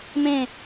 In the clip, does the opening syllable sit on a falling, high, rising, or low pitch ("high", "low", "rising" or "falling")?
falling